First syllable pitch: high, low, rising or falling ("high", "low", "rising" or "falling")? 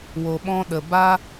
low